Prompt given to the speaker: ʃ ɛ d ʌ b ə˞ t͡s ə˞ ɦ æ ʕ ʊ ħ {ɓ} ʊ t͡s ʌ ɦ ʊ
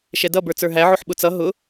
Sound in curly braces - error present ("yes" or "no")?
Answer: no